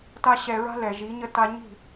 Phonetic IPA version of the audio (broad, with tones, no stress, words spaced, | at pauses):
ta˦ɕɛ˧ɹa̤˦ lɛ˨ʒi˨˦ɲə˦˨ ta˧ɲi̤˦˨